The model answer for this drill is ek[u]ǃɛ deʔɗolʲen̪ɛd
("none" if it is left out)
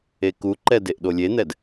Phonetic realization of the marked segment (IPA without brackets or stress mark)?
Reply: u